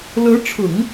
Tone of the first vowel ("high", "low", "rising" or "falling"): rising